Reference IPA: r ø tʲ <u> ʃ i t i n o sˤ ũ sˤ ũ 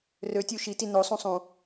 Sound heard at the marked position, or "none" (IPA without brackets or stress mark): u